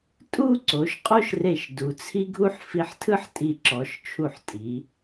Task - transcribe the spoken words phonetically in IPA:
tʼu˥˧ ǀo˩˧ʃ qʼo˥ʃre˧˩ʃ du˩˧t͡sʰi˥ɡʱu˥ħ fi˧ħtʰɯ˥ħtʼi˧˩ǁɔ˩˧ʃ t͡ʃʰu˧˩ħtʼi˩˧

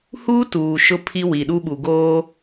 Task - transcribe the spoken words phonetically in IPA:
huː˦tuː˨ ʃʊ˦pʰi˦ wi˨ɗu˦ɓu˨ ɡoː˦

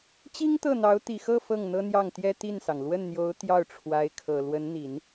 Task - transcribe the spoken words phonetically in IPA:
t͡ɕi˥ŋt̪ɤ˥˩n̪ɑ˧˥ʊ̯ t̪i˨˩xɤ˥˧ fɤ˥˩ŋn̪ɤ˥n̪jɑ˥˩ŋt̪jɛ˥ t̪i˥˩nsɑ˩ŋ lwə˥˩nn̪jo˧˥ʊ̯ t̪jɑ˥˩ʊ̯ʈ͡ʂʰwa˧˥ɪ̯kʰɤ˨˩ lwə˧˥nn̪i˨˩˦n

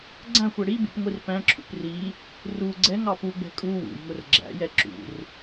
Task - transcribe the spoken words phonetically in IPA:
ɡ͡ǀæ̃xʷɛ ɽibṵp ŋʷirpæ̃ǁʰṵp ri | ru ɡ͡ǀɛŋɑ puɡ͡bɛ̤ kʼu wṵjŋʊr ɡ͡ǁæ̰jɛ ǁṵr

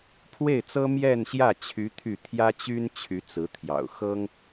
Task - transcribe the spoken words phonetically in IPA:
pʰwe˥˩ɪ̯t͡sɤ˥ mjɛ˥˧nɕjä˥˩t͡ɕʰy˧˥ t̪ʰy˥˩ t̪ʰjä˥t͡ɕy˥n t͡ɕʰy˧˥t͡sɹ̩˧˥t̪ʰjɑ̰˨˩ʊ̯ xɤ˥ŋ

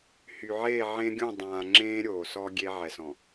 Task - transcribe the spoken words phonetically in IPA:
hy˨ʕeː˦˨ʕẽ˦ɡʲũ˦˨ dˤãː˨ ŋ͡ǁẽː˦ɾʲoː˨ sɔ˦ ɡʲe˦ ʕɛ˨sɔ̃˨

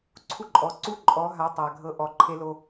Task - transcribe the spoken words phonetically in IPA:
ǀʰu˦ǃʼɔ˨ ǀu˦ǃʼɔ˨˦ɦa˨˦ tˤa˨ɡʱɤ˧ ʔɔ˨ǃʰe˧ lo˧

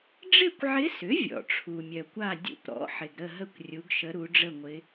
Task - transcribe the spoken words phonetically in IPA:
ɖ͡ʐɪ˥˨kʷʕɪ˧˥sʏ˩˥ vʲɔ̰˩ʈ͡ʂʰu˩mʲœ˩kʷa˥˨ dʲṵ˧˥pɾɔ̰˩˥ ħɪ˩ɡɾə˥˨ɦə˥˨kʷ rʲu˩˧ɡʃə˩˧ ɾu˩˧ɖ͡ʐə˥˨ŋʷɪ˧˥

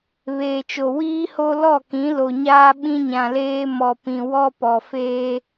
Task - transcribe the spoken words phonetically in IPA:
βeː˨t͡ʃo˨ wiː˦ho˦ lɔ˦˨kĩ˨˦lo˨ɲaː˦ ɓĩ˦ɲã˨leː˦ mɔ˨pĩ˨ wɔ˦pɔ˨ feː˦

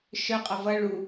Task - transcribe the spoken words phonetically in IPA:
ʃœqʼʌ vʌ ɭu

